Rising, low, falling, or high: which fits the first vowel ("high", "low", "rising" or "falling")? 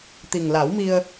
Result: low